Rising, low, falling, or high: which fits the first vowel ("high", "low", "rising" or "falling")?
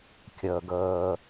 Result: low